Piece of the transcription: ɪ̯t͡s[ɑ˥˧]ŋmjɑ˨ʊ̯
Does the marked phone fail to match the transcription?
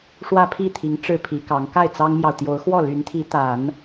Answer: yes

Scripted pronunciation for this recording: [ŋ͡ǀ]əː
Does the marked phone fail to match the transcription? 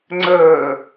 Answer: no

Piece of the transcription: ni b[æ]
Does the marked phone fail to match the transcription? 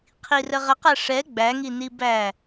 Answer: no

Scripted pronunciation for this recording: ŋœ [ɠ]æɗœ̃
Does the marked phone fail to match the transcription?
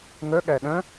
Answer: no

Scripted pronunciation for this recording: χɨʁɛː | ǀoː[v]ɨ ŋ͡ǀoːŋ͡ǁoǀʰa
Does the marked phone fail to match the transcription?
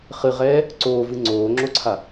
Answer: no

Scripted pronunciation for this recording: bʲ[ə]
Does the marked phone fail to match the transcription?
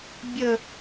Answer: no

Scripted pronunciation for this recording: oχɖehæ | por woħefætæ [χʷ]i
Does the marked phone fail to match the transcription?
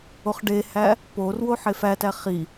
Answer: yes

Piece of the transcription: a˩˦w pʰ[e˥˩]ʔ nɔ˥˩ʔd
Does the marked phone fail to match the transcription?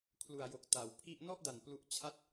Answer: yes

